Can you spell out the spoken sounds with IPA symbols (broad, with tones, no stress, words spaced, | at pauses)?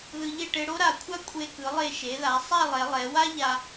ðɯ˧ʎe˥˧ ʈe˧ɽo˥ɾa˧˩kʷʰa˥ kʷʼe˧kɯ˩˧lˠe˧˩ ʃe˩˧ða˩˧ sˤa˥˧lˠɛ˩˧lˠɛ˩˧wa˥ ʎa˧